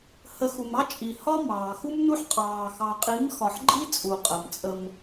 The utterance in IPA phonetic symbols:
hə˨˦xu˨mɑ˦ t͡ʃʼi˨hɒ˦ mɑː˨xu˦mnu˦ħ qʼɑː˨ xɑ˨qʼi˨˦m xɒ˧ħ ɡ͡ǃi˦t͡sʼu˨qʼə˨m t͡sʼə˧m

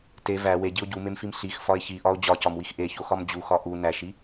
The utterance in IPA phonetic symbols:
te væ weɟio̯ ɟumemfim ɬix fɒe̯çiʔɒo̯ d͡ʑɒcɒmwix ʔeçoxɒm d͡ʑuxɒ ʔu næʃi

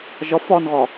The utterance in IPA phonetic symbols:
ʒɒf ɒnɣɒ

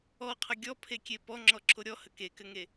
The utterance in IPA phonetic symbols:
ɔqʰə ɡʲɔpʰekʲe pɔŋ͡ǁɔǁʰo ɾʲɔhə kekɘŋe

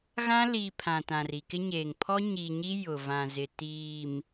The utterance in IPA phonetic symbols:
ɣã˦liː˨ pʰã˨tã˨ri˨ kɪ˦ɲeː˨ŋ pʰɔ˦ɲiː˨ɲi˦ jʊ˨vã˨zɪ˨ tiː˨m

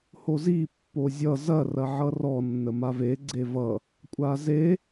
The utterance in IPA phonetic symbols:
hozi pːozʲʌ zɐ rɐʕʌrɔ nːəmave ɡ͡ǀevʌ | kʷʼaze

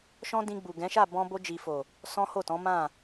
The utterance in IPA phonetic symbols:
ʃɔ̃˦dĩ˧ɡ͡bu˨ ɡɛ̃˨˦ʃa˦˨ bɔ̃˧bo˧d͡ʒi˨fo˨ | sɔ̃˦ho˦˨tɔ̃˨˦ mã˦˨

